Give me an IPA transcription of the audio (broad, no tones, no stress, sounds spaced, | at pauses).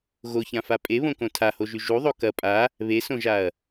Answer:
ɣ o ç ã f a pʼ e β õ k õ tʰ a h o ʒ ʉ ʒ u ðˤ o k ɐ pʼ a | β e s õ ʒ a ɐ̯